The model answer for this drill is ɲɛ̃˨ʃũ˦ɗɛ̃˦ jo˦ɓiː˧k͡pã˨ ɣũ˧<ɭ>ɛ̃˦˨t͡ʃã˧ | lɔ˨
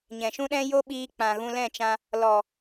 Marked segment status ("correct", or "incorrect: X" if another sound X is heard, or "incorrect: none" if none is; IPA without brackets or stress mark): incorrect: l